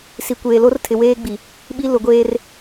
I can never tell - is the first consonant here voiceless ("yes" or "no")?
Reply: yes